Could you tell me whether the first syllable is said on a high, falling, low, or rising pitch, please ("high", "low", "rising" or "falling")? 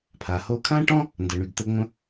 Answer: low